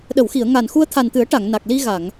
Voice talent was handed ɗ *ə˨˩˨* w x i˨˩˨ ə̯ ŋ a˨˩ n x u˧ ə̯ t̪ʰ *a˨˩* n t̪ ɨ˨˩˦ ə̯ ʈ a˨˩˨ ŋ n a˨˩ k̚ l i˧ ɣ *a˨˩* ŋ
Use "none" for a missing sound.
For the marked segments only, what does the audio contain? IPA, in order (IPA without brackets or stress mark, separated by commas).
ə˨˩˨, a˨˩, a˨˩˨